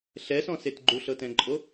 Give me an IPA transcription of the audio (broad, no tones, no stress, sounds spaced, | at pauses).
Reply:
ɬ ɛ s ɔ̃ s e t ɡ͡ǃ u ɬ ɤ t ɛ̃ ǃʼ o